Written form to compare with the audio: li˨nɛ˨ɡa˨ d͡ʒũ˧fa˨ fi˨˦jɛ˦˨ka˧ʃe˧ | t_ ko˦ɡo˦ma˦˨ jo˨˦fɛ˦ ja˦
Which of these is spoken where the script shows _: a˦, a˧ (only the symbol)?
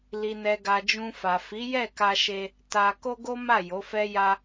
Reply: a˧